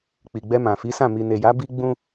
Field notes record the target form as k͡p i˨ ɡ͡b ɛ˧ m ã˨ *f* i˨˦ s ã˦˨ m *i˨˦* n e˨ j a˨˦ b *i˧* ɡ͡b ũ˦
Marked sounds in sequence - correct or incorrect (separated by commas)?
correct, incorrect, incorrect